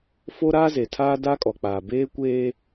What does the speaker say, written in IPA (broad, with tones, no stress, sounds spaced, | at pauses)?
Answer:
f o˦ ɾ aː˦ z e˨ tʰ aː˦ d aː˦ kʼ ɔ˨ k͡p aː˨ b eː˦ kʷ eː˦